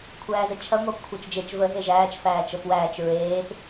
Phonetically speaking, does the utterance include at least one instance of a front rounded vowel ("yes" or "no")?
no